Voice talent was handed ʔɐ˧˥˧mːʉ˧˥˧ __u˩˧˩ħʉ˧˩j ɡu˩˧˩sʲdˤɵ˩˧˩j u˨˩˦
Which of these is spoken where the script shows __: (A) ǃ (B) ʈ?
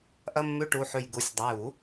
B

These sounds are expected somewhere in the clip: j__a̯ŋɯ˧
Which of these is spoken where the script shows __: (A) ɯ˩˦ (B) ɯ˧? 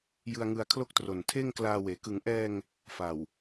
B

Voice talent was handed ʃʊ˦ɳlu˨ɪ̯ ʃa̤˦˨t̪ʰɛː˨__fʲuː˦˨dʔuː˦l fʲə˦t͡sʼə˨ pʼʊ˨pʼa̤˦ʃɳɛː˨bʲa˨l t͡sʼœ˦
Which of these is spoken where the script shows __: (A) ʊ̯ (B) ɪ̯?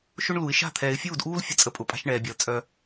B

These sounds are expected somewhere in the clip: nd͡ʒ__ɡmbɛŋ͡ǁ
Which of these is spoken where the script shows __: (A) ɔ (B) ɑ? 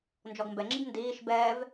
A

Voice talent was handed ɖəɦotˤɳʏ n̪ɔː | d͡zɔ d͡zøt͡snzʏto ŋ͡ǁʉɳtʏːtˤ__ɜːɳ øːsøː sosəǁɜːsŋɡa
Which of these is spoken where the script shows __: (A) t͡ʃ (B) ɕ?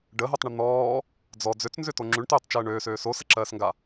A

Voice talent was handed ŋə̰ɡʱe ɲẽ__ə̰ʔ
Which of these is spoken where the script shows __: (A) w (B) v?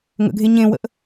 A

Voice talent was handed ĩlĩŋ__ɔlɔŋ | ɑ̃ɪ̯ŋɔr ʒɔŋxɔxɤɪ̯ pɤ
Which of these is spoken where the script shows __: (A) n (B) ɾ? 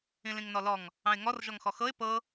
A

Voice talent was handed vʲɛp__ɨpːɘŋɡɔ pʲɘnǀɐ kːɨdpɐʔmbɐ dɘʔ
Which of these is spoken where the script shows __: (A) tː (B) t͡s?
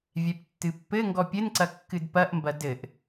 A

